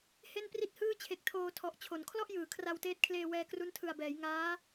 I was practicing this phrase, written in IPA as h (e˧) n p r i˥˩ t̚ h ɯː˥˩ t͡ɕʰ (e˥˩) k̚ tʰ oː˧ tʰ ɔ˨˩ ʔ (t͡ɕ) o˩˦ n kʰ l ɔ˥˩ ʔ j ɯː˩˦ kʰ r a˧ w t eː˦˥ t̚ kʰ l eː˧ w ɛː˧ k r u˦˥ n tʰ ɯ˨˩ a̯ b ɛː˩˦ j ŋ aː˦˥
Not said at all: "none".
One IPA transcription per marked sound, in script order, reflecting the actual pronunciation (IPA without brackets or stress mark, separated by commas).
e˥˩, e˨˩, t͡ɕʰ